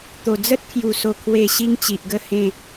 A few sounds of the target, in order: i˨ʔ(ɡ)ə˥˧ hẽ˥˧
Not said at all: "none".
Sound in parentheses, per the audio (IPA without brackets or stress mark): ɡ